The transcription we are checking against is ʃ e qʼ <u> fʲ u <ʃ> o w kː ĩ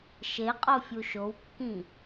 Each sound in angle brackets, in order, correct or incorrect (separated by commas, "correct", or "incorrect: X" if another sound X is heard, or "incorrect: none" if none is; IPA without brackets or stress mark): incorrect: o, correct